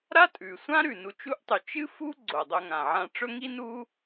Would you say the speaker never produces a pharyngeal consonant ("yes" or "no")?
no